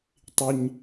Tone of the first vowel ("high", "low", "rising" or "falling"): low